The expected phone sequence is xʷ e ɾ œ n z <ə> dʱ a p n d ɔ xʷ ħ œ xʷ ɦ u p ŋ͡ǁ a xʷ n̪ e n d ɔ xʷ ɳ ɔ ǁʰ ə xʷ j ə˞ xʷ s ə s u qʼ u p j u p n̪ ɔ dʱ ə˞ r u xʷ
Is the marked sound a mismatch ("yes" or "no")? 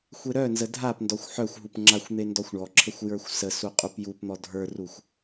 no